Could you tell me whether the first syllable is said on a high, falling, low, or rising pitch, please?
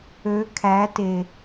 rising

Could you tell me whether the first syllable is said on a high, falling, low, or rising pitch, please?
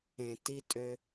low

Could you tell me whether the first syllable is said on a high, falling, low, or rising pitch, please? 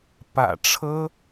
low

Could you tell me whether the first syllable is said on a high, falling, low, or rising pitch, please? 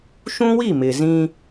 high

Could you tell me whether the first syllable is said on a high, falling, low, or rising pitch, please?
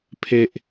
high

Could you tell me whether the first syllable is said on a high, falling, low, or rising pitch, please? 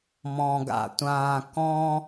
high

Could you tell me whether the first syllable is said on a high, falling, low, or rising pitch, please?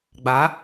rising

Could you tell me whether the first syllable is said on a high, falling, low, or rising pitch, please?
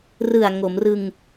low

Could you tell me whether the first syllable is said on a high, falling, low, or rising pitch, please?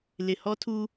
low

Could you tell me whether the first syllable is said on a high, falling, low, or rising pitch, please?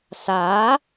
rising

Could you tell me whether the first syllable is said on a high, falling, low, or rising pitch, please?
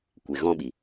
low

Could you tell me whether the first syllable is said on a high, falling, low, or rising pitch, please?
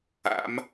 rising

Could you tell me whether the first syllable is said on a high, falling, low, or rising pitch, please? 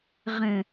low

